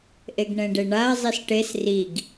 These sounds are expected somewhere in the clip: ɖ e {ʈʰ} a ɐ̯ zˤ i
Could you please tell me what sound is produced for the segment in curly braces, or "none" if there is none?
ɳ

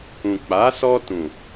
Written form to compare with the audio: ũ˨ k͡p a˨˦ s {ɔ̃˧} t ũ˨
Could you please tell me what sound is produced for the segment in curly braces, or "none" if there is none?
ɔ˧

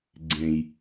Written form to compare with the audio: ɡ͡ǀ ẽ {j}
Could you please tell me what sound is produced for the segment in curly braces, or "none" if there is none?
j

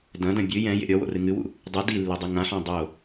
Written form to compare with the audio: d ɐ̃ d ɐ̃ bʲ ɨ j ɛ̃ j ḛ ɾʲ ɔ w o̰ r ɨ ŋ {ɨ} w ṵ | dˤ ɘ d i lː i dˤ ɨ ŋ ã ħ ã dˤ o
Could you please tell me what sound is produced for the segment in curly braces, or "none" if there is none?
ɨ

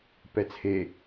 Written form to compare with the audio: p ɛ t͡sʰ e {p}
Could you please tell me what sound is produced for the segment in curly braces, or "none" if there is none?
none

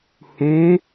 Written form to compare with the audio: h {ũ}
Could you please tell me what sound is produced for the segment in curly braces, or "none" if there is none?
ũ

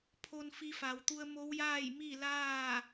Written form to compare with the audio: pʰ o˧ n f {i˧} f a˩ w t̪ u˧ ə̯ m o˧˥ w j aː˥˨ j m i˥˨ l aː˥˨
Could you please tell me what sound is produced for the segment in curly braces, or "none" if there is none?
i˧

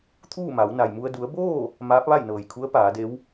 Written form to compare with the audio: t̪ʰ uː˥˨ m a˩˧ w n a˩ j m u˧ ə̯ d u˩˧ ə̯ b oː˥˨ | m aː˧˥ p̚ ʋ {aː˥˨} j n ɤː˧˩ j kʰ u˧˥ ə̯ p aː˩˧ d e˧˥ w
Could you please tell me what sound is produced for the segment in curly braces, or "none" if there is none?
a˥˨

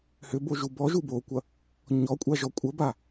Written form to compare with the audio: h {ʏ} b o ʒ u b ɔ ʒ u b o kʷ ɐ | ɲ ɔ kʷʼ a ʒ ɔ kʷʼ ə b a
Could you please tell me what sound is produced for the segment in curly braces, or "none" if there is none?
ʏ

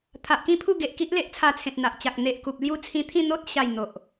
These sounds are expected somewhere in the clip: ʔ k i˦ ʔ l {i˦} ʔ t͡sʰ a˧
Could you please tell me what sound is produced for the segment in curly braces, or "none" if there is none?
e˦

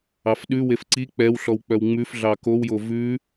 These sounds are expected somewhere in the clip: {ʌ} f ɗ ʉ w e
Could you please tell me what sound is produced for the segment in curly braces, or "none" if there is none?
ɑ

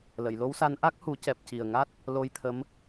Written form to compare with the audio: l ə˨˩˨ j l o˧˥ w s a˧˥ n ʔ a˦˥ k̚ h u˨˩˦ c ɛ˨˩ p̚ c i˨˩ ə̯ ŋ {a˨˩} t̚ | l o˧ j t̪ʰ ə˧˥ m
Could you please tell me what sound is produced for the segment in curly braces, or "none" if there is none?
a˦˥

